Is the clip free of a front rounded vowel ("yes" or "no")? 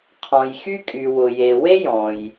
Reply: no